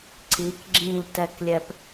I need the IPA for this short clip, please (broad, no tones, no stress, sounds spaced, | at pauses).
ǀ i k ɡ͡ǁ ĩ ʎ t ɛ k lʲ ɛ p